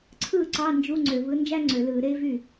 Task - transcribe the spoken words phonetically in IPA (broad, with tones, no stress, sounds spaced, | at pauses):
ǀʰ ɯː˥˩ ǀ ɑ˧˥˧ n d͡ʒ u˧˥˧ ŋ͡ǀ ø˧˩˧ v ɯ˨˥ n d͡ʒ æ˥ ŋ͡ǀ ø˧˩˧ l ɯː˧˩˧ ɾ eː˥ v y˥˩